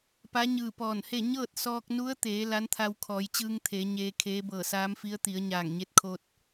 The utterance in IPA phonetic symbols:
pa˧˥ɲɯː˧˩ pɔː˧˩nhe˥˨ ɲɤː˥˨t̚sɔː˧k̚nu˧˥ə̯t̪eː˩˧ la˧˥nt̪ʰa˧wkʰɔː˩˧jt͡ɕɯː˧ŋ t̪ʰe˩˧ɲeː˧kʰeː˧˥ bɤː˧˩saː˧˥mfi˧˥ə̯ t̪i˩˧ə̯ɲaː˧˩ŋɲe˧˥t̚kʰoː˧t̚

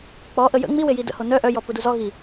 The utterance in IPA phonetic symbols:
k͡pɔ ʔəjə̰ ŋ͡miweji də̰ho nœ ʔœjɔ puduzɔ ɣi

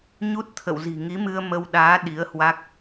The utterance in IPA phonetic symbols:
ɲu˦˥t̚t̪ʰə̰˧˨wzi̤˨˩ ŋi˨˦mɨ˧ə̯mə˧wɗaː˨˦ ɗi˨˦ə̯hwa˦˥k̚

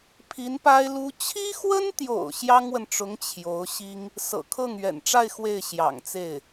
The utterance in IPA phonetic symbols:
pʰi˧˥npa˥ɪ̯lu˥ t͡ɕʰi˥xwə˥nt̪jo̰˨˩ʊ̯ ɕjɑ˥ŋwə˨nʈ͡ʂʊ˧˥ŋ t͡ɕʰjo˧˥ʊ̯ ɕi˥ŋ | sɤ̰˨˩kʰɤ˥˩ŋɥɛ̰˨˩nʈ͡ʂa˥˧ɪ̯ xwe˥˩ɪ̯ ɕjɑ̰˨˩ŋt͡se˥˩ɪ̯

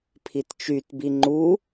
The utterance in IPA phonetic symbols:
pʰitt͡ʃytbi ŋ͡ǃu

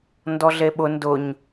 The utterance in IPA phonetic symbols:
ndɔɮeɓʊ ndʊɲ

